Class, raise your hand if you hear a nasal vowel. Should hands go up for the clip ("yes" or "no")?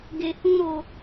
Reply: yes